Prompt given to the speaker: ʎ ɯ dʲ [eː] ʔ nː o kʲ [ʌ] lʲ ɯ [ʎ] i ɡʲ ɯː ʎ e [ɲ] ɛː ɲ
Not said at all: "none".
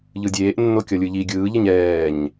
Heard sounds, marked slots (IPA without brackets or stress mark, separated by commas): eː, ʌ, ʎ, ɲ